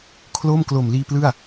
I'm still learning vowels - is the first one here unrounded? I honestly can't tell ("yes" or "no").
no